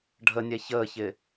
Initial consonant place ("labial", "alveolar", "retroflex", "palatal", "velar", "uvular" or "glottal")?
retroflex